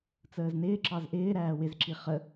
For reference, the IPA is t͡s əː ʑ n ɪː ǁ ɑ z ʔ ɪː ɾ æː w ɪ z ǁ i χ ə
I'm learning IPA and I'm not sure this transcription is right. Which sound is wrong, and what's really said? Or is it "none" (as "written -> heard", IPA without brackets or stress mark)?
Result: ʑ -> z